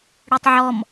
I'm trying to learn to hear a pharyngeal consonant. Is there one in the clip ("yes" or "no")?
yes